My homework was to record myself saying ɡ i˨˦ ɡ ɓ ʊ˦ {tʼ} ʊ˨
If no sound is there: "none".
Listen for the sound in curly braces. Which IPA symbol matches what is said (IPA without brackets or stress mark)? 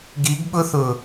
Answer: θ